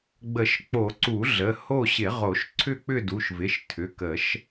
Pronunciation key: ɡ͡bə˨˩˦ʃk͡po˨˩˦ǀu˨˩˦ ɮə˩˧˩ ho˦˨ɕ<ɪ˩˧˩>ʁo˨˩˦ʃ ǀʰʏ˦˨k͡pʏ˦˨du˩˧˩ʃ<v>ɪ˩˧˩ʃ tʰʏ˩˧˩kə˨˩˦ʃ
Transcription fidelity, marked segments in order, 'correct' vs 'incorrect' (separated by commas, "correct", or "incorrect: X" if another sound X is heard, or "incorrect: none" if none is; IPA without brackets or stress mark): incorrect: ɪ˨˩˦, correct